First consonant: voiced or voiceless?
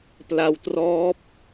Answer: voiceless